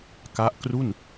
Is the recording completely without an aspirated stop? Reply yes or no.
yes